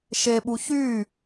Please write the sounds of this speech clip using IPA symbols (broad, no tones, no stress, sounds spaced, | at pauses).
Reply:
ʃ e ɓ u ç y